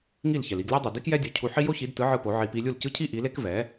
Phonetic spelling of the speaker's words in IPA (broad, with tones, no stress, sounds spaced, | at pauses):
ŋ i˥˩ l ç ɛ˩ l i˧ ɡ lʲ e˥ dˤ ɯ˩ d i˥ k j ɛ˥ dʲ o˩˥ cʰ u˧ ħ i˥ j o˥ ç i˩˥ d t ɯ˩˥ ʕ ɯ˧ p o˩˥ ʕ i˧ p i˧ lʲ u˥˩ l c ɯ˥ cʰ i˥ ʔ i˩˥ l e˥ k v ɛ˩˥